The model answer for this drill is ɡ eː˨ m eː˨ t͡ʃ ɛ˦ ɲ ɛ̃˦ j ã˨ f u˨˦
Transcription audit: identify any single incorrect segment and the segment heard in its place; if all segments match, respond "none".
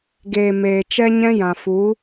none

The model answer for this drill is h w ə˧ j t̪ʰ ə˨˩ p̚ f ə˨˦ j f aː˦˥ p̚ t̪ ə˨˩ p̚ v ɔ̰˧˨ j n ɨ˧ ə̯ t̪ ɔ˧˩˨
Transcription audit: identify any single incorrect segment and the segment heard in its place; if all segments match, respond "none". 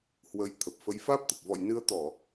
none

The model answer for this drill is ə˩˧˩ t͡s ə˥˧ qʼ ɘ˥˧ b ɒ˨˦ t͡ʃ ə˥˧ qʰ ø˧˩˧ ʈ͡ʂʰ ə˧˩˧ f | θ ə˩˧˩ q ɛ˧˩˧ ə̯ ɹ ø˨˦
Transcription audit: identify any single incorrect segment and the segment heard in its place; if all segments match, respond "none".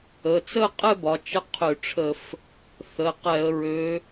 none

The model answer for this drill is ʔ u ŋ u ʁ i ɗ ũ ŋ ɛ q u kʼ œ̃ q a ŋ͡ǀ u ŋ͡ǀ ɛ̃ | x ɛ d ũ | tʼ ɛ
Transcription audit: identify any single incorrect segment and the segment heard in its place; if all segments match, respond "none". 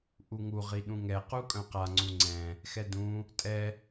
none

